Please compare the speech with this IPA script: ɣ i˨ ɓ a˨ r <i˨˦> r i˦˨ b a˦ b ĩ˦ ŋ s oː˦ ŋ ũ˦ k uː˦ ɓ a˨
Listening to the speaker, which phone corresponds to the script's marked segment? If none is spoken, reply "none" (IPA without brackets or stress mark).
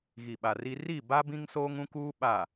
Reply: i˦